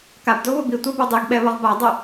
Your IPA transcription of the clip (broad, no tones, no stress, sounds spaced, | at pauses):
k a b d o β ʊ b i tʷ a b o dˤ i ɡ ɓ ɛ β ɔ ʁ b a dˤ ʊ